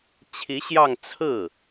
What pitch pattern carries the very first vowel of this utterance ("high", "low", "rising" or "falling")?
rising